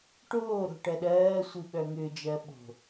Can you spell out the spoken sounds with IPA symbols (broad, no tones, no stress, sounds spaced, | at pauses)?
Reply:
ʈ oː ɾ o̤ ʈ ɜ ɗ ɜː sʷ i ɓ œ ŋ ʏ d͡ʒ ɜ ɓ o̤